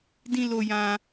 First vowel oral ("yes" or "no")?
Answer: no